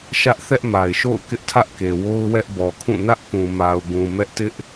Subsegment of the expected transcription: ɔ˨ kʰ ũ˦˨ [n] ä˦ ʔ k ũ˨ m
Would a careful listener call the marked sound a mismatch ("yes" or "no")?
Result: no